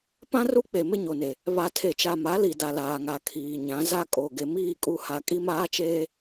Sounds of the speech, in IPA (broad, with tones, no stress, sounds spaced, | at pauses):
p ã˦ r u˦ k͡p e˨ m ɪ˦ ɲ o˨ n e˨ | β a˨ tʰ e˨ t͡ʃ a˨ m a˨˦ l i˨ d a˨ l aː˨ ŋ a˨ kʰ iː˨ ɲ ã˨˦ z a˦ kʼ o˨ ɡ e˨ m iː˦˨ kʼ u˦˨ h a˨ kʼ i˦ m aː˦ t͡ʃ eː˦